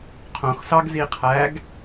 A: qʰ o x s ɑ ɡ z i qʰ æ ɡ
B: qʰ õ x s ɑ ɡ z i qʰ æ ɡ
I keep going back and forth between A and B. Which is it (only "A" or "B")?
B